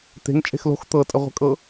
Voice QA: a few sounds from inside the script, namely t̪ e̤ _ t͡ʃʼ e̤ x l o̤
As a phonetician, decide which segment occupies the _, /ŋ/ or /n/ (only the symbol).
ŋ